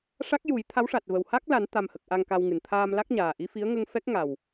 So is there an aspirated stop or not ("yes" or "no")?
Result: yes